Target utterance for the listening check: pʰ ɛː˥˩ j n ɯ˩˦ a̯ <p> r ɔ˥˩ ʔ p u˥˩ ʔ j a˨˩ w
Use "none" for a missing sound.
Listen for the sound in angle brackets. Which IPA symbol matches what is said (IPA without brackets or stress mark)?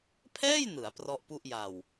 p